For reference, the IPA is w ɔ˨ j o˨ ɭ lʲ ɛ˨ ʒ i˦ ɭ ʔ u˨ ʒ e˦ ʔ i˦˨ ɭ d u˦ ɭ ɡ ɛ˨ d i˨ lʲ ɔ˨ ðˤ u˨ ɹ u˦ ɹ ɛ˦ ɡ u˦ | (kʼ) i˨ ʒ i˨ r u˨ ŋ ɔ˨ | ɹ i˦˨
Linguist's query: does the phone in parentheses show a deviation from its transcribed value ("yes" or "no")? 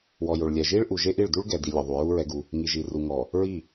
yes